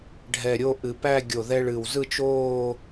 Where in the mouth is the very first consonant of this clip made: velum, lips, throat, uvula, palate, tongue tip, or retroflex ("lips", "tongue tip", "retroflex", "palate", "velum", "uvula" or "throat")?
retroflex